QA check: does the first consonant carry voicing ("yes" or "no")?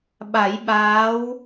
yes